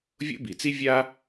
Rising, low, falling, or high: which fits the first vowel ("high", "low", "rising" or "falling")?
high